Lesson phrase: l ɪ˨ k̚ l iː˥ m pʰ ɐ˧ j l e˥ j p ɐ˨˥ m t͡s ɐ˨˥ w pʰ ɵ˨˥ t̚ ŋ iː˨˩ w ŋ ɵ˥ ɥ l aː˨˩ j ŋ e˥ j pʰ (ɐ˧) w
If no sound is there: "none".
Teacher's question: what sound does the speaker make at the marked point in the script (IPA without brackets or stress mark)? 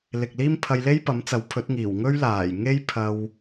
ɐ˧